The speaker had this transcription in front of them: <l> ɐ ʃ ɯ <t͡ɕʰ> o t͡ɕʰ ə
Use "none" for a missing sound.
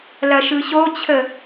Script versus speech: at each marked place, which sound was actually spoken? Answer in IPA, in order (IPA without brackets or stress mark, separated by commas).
l, ɕ